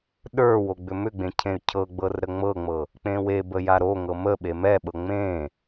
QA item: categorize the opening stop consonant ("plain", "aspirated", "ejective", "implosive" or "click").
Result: implosive